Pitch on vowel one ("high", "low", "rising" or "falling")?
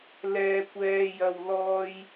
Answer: low